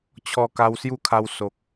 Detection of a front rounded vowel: absent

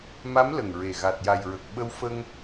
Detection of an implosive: present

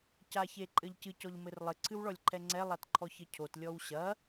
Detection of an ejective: present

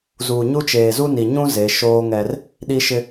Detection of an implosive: present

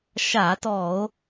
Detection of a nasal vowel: absent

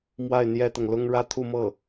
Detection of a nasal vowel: absent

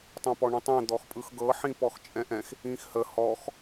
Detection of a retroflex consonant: present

